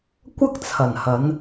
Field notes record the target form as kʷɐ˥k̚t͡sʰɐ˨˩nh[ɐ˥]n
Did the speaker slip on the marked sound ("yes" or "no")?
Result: yes